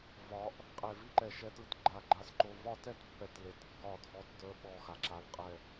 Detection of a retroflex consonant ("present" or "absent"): absent